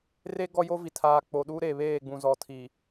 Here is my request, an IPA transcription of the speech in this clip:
r e˦ ɡ ɔ˦ j o˦ v i˨ tʰ aː˨ k͡p o˨ ɗ u˦ ɾ e˨ β eː˦˨ ɡ͡b ũ˨ z ɔ˨ tʰ i˨

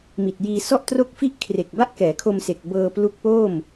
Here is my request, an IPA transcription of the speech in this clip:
m i˨˩ t̚ j iː˧ s ɔ˥˩ ʔ t r o˥˩ k̚ f i˥˩ ʔ kʰ r e˨˩ k̚ b a˥˩ ʔ k ɛː˩˦ kʰ o˧ m s e˨˩ k̚ b ɤː˧ p l u˦˥ k̚ p o˥˩ m

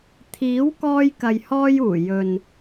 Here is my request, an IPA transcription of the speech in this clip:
t̪ʰ iː˨˥ w k ɔː˧ j k ɐ˨ j h ɔː˧ j uː˨˩ j ɵ˨ n

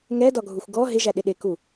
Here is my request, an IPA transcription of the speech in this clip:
ŋ ɛ d ɒ ɡʱ u xʷ ɡ ɔ ɦ ɪ ʒ æ ɗ ɪ ɗ ɪ k u

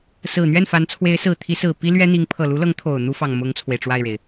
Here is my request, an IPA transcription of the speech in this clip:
s ɹ̩˨˩ n̪ ɥ ɛ˥˩ n f a˧˥ n t͡sʰ w e˧˥ ɪ̯ s ɹ̩˨˩ t̪ʰ i˧˥ s ɹ̩˨˩ p i˥ l ɥ ɛ˥ n̪ i˧˥ ŋ pʰ ɤ˨˩ l u˧˥ l ɤ˧˥ ŋ t̪ʰ o˨˩ ʊ̯ n̪ u˥ f ɑ˨˩ ŋ m ʊ˥ ŋ t͡sʰ w e˨ ɪ̯ ʈ͡ʂ w a˥˩ ɪ̯ ɻ e˩ ɪ̯

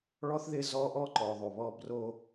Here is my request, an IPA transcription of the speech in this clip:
ɭ ɔ˦ θ ð ɪ˦ z ɔ˦ ʔ ɔ˦ ǃ ɔ˨ ðˤ o˨ β ɔ˦ b r o˦

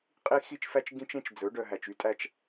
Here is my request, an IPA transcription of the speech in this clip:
qʼ i˦ x i˦ t͡ʃ f æ˦ t͡ʃ ɡ ĩ˦ t͡ʃ ẽ˦ t͡ʃ d͡z ɵ˨˦ ɖ œ˨ ɦ æ˨ t͡ʃ y˦ tʼ æ˦ t͡ʃ

